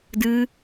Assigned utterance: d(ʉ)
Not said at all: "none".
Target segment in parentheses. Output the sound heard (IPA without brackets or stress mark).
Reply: ɨ